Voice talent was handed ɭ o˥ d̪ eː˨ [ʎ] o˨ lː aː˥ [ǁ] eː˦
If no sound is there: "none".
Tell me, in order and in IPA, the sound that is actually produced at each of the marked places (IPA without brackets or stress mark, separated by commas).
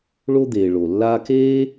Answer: ɭ, k